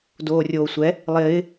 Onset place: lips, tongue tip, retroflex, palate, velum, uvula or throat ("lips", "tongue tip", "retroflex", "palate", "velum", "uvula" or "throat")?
tongue tip